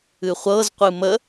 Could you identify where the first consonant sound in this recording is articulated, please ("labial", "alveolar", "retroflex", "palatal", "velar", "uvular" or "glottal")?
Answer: uvular